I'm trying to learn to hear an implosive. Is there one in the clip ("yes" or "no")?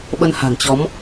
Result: yes